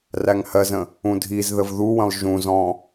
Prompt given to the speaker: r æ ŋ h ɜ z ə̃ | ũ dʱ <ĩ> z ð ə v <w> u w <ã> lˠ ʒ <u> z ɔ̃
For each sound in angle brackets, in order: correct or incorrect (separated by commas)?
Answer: incorrect, incorrect, incorrect, incorrect